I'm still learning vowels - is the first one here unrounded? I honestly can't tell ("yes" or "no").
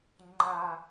yes